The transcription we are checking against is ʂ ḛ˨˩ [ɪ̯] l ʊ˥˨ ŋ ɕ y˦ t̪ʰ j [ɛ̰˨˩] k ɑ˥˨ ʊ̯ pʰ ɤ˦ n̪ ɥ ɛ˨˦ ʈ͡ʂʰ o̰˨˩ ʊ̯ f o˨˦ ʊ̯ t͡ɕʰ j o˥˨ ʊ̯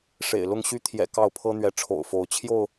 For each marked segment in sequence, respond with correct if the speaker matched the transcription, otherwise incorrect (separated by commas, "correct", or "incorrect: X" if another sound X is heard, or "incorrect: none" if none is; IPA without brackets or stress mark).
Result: correct, correct